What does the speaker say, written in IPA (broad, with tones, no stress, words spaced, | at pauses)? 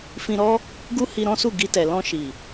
fĩ˧ɾɔ˦ | ɡu˦hi˧ ɾɔ̃˦su˦˨ ɡi˧tɛ˨ lɔ̃˧ʃi˨